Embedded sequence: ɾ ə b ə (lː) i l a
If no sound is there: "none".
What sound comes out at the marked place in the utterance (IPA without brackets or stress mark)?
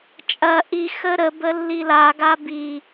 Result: lː